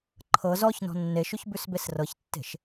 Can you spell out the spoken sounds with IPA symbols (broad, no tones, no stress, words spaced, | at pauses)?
ǃʰɤ zɔç nɔ̤nːeʃʉç bʉsbesrɤçtːe̤ʃ